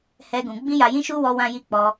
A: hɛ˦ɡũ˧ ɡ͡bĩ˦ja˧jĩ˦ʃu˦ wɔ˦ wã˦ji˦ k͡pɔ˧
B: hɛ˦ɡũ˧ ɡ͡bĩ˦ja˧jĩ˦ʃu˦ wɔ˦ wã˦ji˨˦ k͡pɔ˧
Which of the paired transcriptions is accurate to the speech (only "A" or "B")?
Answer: A